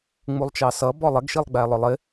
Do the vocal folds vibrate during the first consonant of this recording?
yes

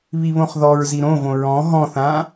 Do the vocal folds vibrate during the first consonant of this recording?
yes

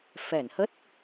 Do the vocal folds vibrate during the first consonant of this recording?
no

